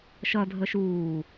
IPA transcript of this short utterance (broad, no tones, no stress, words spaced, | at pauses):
ʃʌdʱə ʃuː